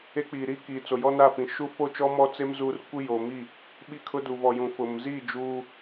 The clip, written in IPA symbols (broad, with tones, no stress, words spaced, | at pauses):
e˦ k͡piː˨ɾiː˦kiː˨ t͡so˨jɔ˦na˦˨fĩ˨ ʃu˦fo˦t͡ʃɔ˦ mɔ˦t͡se˦m zuː˦r kʷi˦ joː˨mi˦˨ | ɓi˦kʰʊ˦du˨ vɔ˨jũ˨ fʊ˨m ziː˦˨ d͡ʒuː˦